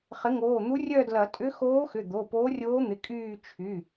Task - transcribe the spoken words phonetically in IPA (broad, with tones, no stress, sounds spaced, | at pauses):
χ ɪ˩˥ ŋ oː˩˧˩ n̪ u˧˥ rʲ œ˦˨ d l ɐ˨˩˦ tʼ ʏ˧˥ x oː˧˥ x ʏ˩˧˩ d̪ o˩˧˩ p oː˧˥ rʲ oː˧˥ n̪ ɪ˩˧˩ kʼ yː˦˨ t͡ʃʰ y˩˧˩